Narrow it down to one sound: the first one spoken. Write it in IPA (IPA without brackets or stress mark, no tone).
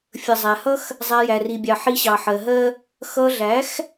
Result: fʲ